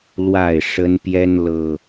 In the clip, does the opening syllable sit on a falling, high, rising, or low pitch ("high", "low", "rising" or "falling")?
falling